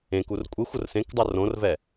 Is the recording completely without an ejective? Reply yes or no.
no